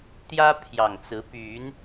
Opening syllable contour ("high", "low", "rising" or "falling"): high